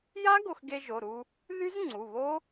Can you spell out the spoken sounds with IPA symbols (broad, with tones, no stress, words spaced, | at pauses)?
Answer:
ja˦˥ ɡo˧xɡe˧ʒo˩˧˩ɾu˧ | ðy˦˥zŋ͡ǀu˩˧˩βo˦˥